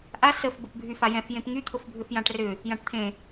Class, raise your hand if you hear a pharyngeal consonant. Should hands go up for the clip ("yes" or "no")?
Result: no